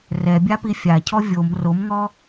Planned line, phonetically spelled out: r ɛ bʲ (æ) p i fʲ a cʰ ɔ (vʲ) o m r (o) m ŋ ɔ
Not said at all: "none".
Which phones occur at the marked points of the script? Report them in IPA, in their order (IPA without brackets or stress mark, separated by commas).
a, vʲ, o